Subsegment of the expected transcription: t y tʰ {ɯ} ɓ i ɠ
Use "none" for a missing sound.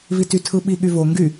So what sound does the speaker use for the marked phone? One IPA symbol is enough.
ɯ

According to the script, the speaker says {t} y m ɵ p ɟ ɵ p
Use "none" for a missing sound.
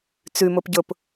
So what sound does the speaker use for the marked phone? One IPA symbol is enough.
t͡s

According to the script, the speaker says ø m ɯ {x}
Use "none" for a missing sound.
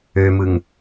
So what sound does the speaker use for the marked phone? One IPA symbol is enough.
ŋ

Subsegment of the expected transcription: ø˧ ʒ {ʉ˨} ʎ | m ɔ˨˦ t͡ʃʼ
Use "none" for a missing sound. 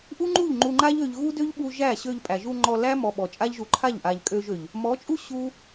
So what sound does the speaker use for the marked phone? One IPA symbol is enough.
ø˨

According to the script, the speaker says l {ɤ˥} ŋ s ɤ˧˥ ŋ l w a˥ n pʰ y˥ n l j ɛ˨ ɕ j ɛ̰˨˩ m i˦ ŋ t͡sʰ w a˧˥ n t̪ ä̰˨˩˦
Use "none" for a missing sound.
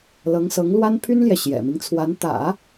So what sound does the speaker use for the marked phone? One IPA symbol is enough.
ɤ˧˥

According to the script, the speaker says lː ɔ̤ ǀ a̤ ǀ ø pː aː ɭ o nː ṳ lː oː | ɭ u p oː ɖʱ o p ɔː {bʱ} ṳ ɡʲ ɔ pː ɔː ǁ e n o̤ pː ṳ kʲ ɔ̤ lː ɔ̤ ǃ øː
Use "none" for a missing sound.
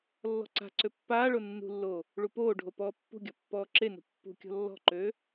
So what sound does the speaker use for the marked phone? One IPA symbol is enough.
pː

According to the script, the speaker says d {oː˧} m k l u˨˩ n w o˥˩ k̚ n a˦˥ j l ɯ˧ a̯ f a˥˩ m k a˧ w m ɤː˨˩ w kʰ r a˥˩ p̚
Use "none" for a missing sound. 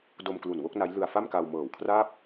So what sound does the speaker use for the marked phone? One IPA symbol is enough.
o˧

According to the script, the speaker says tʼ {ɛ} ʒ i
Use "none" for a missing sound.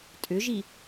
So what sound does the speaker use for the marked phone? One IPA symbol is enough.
ʏ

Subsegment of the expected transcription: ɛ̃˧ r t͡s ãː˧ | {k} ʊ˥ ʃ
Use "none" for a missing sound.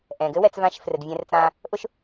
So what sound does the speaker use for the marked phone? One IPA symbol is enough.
ʔ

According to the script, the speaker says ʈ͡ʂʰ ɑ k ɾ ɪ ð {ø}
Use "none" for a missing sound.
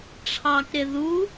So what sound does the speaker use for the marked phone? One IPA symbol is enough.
u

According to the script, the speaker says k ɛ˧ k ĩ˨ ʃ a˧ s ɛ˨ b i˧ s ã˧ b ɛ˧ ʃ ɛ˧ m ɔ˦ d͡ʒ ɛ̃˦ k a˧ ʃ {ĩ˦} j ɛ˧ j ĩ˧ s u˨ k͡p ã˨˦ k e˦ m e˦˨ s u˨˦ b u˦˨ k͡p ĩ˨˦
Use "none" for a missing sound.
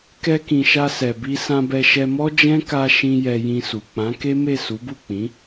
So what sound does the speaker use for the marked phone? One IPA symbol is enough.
ĩ˧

